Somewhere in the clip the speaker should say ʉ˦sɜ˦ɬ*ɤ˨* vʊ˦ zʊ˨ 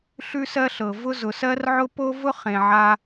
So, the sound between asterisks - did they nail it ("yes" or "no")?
yes